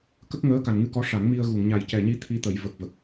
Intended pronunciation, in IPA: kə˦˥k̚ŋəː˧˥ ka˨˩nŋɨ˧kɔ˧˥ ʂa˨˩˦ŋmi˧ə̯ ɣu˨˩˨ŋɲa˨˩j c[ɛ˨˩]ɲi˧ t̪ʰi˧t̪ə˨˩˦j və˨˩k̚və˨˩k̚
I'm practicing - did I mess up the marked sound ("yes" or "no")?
no